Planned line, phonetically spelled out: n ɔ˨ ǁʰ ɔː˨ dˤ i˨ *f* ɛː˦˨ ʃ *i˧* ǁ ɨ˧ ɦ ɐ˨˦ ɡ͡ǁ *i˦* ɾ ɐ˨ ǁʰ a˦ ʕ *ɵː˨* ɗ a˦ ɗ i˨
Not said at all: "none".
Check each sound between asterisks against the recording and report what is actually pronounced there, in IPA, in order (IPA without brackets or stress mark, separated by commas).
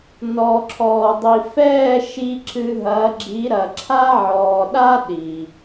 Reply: f, i˧, i˨˦, ɔː˨